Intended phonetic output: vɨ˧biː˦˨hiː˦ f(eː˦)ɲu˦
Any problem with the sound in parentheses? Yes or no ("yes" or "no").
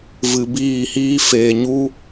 yes